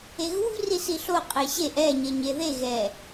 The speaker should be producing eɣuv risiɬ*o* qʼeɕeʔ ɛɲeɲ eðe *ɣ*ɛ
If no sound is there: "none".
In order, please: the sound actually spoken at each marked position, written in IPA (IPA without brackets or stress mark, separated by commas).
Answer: o, ɣ